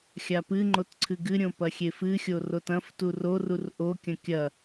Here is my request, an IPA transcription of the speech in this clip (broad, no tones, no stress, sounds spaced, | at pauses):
xʲ a p ɨ ŋ͡ǃ o t ǀʰ ɨ ɡ ɨ ɾʲ õ p ɐ xʲ e f ɨ xʲ o r o t ɐ̃ f t u r o r u r ʔ o kʲ ɐ̃ kʲ ɐ